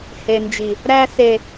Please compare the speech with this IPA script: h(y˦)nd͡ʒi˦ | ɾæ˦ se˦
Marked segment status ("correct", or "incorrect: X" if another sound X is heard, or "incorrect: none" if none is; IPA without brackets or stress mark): incorrect: e˦